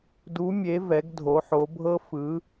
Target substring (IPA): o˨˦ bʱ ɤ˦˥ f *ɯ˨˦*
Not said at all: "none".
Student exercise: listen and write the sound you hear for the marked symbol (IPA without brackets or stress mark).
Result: ɯ˨˦